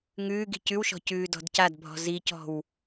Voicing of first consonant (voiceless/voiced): voiced